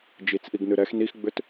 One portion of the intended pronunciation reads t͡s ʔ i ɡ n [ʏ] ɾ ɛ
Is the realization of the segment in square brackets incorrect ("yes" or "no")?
yes